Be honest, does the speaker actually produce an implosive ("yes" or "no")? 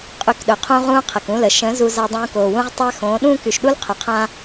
yes